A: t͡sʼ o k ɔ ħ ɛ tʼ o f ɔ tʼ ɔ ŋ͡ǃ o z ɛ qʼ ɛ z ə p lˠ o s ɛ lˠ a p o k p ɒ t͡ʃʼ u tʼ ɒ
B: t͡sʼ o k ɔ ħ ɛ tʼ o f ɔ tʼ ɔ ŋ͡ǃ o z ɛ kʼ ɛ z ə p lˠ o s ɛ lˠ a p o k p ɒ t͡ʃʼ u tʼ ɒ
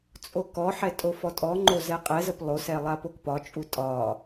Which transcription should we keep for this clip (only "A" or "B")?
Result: A